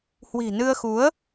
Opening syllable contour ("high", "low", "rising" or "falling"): low